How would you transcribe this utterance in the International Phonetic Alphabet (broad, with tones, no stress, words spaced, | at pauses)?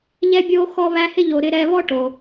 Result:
ʎɛ˥bʲo˥ xɔ˦βæ˦hɪ˥ʎo˨ ɾɪ˦ɾɛ˦ βɔ˥ʈo˩